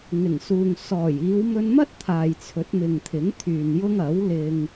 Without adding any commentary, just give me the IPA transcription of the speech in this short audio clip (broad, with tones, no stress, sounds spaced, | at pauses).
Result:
ŋ ɪ˨˩ ŋ s uː˨ ŋ s ɔː˨˩ j iː˨˧ w m ɵ˧ n m ɐ˥ t̚ t̪ʰ aː˨ j t͡sʰ ɵ˨˥ t̚ m ɪ˨ ŋ t̪ʰ ɪ˨˥ ŋ t̪ʰ yː˨ n j ʊ˥ ŋ ɐ˨˥ w l ɪ˧ ŋ